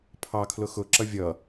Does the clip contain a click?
yes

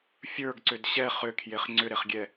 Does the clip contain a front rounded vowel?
yes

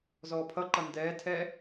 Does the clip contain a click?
yes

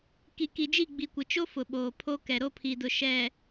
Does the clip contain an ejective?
no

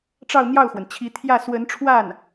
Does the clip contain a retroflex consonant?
yes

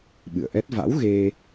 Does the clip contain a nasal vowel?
no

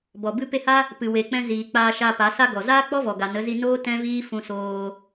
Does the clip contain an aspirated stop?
no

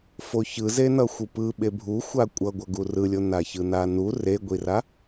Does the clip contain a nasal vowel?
no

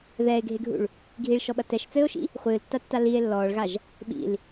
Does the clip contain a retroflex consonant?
yes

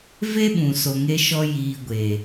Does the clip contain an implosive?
yes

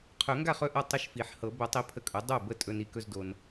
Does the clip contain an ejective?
yes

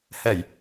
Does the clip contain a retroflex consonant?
no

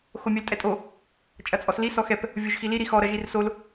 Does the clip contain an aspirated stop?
no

